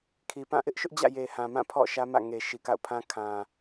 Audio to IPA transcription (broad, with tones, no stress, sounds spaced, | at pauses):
kʰ i˨ p ã˦˨ ʔ ɪ˦ ʔ ʃ ʊ˦ ʔ d͡ʑ ä̰˦˨ j e˨ h ã˨ m ã˦˨ pʰ ɔ̰˦˨ ʃ ä˦ m ä̰˦˨ ŋ e˨ ʃ i˨ k a̰˦˨ ʊ̯ pʰ ã˦ kʰ ã˨